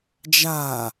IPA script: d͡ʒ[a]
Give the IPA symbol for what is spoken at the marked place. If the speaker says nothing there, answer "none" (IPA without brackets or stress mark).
a